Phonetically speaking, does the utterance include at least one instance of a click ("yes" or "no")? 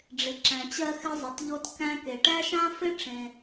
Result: yes